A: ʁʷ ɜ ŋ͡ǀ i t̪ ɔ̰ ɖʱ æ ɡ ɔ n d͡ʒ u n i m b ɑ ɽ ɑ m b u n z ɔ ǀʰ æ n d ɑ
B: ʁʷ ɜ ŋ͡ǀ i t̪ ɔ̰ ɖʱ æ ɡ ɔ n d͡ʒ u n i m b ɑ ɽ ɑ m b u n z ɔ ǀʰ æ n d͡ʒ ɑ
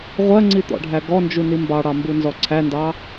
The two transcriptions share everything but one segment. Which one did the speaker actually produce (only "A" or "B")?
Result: A